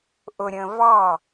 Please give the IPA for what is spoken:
ʔ ʊ ɾʲ ə̃ː v ɑ

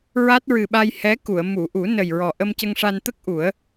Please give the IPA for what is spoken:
ɹ a˦˥ t̚ ɹ ɨ˨˩ ɓ a˧ j h ɛ˧˥ k u˨˩˨ ə̯ m u˨˩˨ ʔ u˨˩˦ n ə˨˩ j ɹ ɔ˨˩ ʔ ə˧ m c ə˧ ŋ ʂ a˧ n t̪ ə˦˥ k̚ ʔ u˨˩˦ ə̯

